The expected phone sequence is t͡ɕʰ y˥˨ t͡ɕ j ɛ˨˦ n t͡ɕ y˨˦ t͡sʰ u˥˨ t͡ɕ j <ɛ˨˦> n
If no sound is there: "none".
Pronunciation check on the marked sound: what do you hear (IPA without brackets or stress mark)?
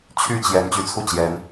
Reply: ɛ˨˦